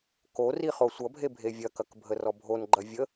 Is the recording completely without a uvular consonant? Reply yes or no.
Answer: no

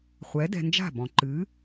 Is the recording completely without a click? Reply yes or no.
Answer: no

